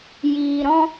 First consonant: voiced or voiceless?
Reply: voiced